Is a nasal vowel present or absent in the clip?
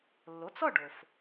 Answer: absent